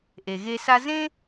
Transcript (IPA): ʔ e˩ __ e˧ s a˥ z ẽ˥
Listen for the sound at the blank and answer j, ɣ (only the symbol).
ɣ